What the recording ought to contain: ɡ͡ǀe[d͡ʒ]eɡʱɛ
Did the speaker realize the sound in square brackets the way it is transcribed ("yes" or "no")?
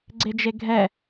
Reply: yes